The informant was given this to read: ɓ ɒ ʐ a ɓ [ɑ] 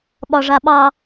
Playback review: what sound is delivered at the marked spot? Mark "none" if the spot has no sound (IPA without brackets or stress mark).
ɑ